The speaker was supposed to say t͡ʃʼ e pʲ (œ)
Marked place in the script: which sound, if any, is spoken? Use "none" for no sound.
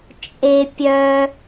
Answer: œ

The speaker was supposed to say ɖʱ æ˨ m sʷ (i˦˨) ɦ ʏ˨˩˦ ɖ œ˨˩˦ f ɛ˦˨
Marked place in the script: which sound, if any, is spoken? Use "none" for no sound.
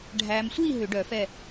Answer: i˦˨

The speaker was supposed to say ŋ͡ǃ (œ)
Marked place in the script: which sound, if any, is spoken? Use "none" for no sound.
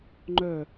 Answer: œ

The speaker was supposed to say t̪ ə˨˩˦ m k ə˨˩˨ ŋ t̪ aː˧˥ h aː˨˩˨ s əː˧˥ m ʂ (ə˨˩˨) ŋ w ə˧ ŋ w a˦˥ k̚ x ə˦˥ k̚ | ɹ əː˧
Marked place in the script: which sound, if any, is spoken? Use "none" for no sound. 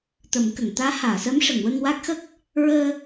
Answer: ə˨˩˨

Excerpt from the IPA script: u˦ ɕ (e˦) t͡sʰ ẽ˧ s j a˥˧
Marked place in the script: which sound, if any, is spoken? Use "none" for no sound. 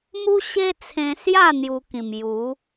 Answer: e˦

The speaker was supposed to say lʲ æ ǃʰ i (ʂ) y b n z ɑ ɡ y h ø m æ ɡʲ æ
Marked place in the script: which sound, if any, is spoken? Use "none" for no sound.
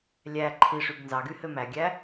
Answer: ʂ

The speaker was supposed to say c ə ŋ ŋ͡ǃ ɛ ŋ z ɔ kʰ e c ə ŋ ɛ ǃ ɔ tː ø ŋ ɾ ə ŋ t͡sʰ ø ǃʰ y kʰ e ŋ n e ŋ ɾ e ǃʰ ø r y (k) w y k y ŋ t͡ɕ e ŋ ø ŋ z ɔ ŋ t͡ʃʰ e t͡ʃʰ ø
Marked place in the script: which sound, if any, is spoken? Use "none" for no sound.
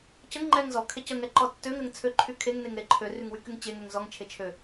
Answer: ŋ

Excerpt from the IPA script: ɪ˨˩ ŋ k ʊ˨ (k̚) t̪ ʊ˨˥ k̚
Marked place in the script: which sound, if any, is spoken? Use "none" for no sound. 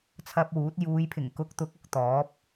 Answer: k̚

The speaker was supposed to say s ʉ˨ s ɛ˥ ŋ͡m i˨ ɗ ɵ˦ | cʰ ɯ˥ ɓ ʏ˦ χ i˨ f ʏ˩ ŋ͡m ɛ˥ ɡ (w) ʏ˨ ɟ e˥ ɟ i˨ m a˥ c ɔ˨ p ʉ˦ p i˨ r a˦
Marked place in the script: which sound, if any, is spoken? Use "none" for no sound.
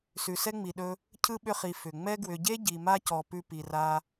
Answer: w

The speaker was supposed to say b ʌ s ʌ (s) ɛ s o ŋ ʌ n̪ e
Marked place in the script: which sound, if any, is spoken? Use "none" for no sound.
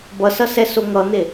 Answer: s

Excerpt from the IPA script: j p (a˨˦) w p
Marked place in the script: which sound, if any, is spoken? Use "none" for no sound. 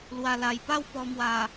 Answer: a˥˧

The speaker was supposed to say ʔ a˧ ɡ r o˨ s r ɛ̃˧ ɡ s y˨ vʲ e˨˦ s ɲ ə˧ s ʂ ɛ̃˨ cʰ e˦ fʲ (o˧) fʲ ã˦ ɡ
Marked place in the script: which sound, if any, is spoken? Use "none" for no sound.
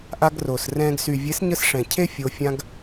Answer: o˧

